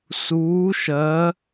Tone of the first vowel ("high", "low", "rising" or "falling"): rising